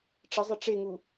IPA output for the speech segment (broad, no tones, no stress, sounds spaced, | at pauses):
ʈ͡ʂ ə zˤ ɪ ʈ͡ʂ e ŋ u